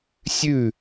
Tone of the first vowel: falling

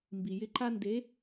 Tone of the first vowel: low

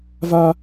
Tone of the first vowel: high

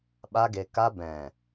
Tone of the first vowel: high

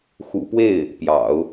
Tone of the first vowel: low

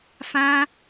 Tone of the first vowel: high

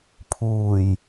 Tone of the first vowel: low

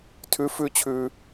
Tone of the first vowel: rising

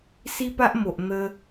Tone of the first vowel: high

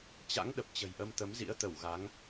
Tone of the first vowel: rising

